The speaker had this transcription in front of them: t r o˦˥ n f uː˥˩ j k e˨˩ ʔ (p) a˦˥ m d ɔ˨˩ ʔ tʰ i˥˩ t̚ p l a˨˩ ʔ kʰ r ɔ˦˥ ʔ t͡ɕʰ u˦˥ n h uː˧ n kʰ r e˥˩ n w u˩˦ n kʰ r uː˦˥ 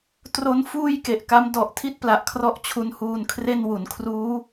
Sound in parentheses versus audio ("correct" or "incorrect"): incorrect